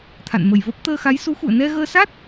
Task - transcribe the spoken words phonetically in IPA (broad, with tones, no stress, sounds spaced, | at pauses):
t̪ʰ a̰˧˨ n m ə˨˩ j v ə˦˥ p̚ t̪ əː˧ x a˨˦ j s u˨˦ x ṵ˧˨ ə̯ n ɛ˧ ɣ əː˧ s a˦˥ t̚